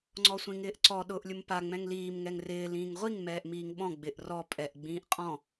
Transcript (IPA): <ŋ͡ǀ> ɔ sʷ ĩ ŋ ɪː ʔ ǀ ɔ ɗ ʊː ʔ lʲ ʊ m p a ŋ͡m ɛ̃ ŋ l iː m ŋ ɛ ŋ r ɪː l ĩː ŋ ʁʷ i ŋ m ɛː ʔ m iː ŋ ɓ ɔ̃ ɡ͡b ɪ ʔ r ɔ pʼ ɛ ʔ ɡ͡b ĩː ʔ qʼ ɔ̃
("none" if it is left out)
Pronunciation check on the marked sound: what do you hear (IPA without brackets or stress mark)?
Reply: ŋ͡ǀ